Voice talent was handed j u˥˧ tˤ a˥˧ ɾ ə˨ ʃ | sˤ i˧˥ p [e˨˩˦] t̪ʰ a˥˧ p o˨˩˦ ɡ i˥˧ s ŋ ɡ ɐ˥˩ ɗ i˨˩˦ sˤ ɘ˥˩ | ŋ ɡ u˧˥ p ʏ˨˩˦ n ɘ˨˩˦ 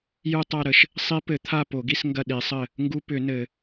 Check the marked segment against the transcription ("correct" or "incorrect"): incorrect